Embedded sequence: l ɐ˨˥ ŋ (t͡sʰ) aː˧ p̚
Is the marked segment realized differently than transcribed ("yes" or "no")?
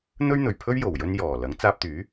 yes